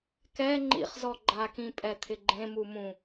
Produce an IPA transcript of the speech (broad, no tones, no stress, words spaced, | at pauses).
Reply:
kɛ ŋ͡ǃḭχzɔ ɡ͡ǃakĩ pʼɛt̪ʰɪɡ͡ǃẽmu mũ